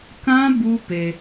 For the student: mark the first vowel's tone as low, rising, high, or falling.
high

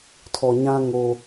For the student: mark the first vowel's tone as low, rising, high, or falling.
low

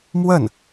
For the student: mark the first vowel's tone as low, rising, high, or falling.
falling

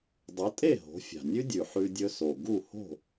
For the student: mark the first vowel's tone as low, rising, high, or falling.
rising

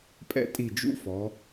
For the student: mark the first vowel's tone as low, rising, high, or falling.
high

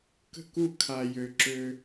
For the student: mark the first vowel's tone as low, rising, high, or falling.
falling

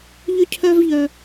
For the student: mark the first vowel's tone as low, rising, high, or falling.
high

